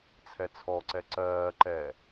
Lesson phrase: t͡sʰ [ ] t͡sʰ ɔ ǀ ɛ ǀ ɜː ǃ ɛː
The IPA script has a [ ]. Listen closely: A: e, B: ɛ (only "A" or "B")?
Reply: B